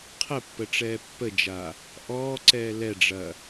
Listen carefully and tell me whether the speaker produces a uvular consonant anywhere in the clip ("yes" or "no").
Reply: yes